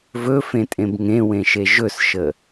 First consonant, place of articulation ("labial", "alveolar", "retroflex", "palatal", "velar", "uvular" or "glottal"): labial